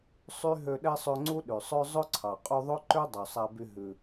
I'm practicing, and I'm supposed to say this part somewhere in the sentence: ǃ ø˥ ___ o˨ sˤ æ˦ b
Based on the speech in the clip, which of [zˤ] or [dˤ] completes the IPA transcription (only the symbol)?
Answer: dˤ